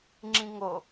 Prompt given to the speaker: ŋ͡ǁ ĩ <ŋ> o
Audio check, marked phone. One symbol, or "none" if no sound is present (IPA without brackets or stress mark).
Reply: ŋ